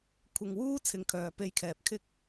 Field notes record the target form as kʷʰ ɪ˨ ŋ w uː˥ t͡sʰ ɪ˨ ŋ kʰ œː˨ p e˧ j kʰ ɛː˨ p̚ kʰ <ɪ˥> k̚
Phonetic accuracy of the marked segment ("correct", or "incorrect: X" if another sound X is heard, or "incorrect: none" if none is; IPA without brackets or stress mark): correct